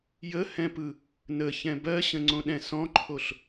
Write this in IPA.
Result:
j ə h ɛ̃ p ɯ | n ə ç ɛ̃ b ɜ ɕ ə̃ ŋ͡ǀ õ ɗ ɛ̃ s ɔ̃ ǃʰ o ɬ

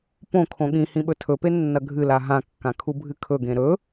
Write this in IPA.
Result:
p õ kʰ õ ɠ ĩ h ĩ ɓ ɵ tʰ ɵ p e nː ɐ ɡʱ ɨ l a ɦ ã kː ã kʰ u bʱ ɨ kʰ ɵ ɡ ẽ ɾ ɵ

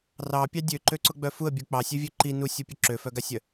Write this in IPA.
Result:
r ɑ pʲ ɑ dʲ ø ǃ ø ǀ ʊ ɡ͡b œ f u ə̯ bʲ u k͡p ɑ sʲ ø vʲ ø ǃ i n u sʲ u pʲ ʊ ǁ ø f œ ɡ a sʲ œ

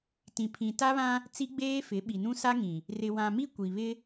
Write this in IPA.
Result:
t ĩ˨ pʰ ĩ˨ t a˦ β ã˦ | t͡s i˦ ɡ͡b eː˦ f ɪ˨˦ ɓ i˨ n ũ˦ s a˦ ŋ ĩ˨ | r ɪ˨ w ã˨ m i˦ kʷ i˨ β ɪ˦

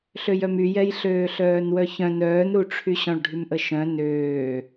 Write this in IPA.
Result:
ɬ ø j œ m y j ɛ j ɬ øː ɬ œː n w œ ç œ̃ n œː n ɾ u ʈ͡ʂʰ y ɕ ɔ̃ ɭ ɖʱ y m ʔ ə ʃ œ̃ n øː

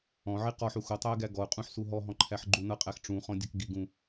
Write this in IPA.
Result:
ɔ̃ ʕ i q ɔ ħ u x o tˤ æ ɪ̯ ɡ æ ɡ ɔ ʊ̯ qʼ ũ ħ s u ɦ ɔ ɦ ɔ̃ ǃʰ æ ħ ɡ͡ǃ u n ʌ qʼ æ x ʈ͡ʂ ũ χ ɔ̃ dʲ ʌ k ɡ i ɡ ũ

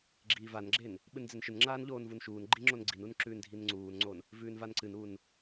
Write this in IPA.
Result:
ɡ͡ǁ iː v a n ɡ͡ǁ e n | ɓ ɨ n d͡z e n ʃ ɨ n ŋ͡ǁ aː n ʎ oː n v u n ʃ uː n ɡ͡ǃ i ŋ͡ǁ o n ɡ͡ǀ i n u n ǁ ʉː n dʱ i n ŋ͡ǀ uː n ŋ͡ǀ o n | v ʉː n v a n ǀ ɨ n uː n

